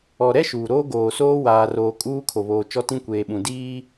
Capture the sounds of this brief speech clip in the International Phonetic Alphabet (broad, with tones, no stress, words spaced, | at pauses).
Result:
ɔ˨ɾɛ˦ʃuː˨ ɾoː˦ɡoː˨soː˦ waː˨roː˨ kʼuː˦kʰo˨βoː˨ t͡ʃɔ˦tĩ˦kʷeː˨ɓũ˨ diː˦